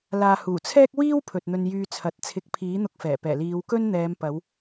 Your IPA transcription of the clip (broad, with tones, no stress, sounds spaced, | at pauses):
l aː˨ h uː˨˩ t͡sʰ ɛː˥ k̚ w iː˥ w pʰ ɵ˨ t̚ n̪ ɵ˧ n j yː˧ t͡sʰ ɐ˨˥ t̚ t͡sʰ ɪ˨˥ k̚ pʰ iː˨˥ n̪ ʊ˧ k̚ f ɛː˨˩ p ɛː˨˩ l iː˨˧ w k ɵ˥ n n̪ ɛː˨˧ m p ɐ˨˧ w